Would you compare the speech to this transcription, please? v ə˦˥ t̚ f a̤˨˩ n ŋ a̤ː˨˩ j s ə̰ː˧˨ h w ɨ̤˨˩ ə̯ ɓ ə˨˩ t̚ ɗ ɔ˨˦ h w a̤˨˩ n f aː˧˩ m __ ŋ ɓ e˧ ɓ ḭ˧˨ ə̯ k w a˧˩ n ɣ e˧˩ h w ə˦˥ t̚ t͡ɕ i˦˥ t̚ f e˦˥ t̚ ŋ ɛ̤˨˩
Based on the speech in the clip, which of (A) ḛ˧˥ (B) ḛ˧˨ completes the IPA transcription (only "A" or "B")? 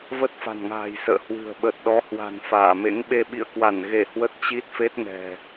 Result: A